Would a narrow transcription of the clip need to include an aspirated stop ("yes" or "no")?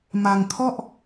yes